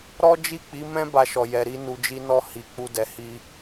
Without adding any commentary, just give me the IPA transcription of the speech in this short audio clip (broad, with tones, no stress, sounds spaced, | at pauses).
ɾ ɔ˦ d͡ʒ i˦˨ k͡p i˨˦ m ɛ̃˦ b a˧ ʃ ɔ˨ j ɛ˨ ɾ i˧ n u˨ d͡ʒ i˧ n ɔ˧ h i˨ k͡p u˧ d ɛ˨ h i˧